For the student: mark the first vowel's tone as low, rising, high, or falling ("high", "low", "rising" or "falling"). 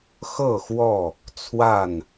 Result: falling